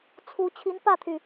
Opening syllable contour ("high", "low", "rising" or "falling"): rising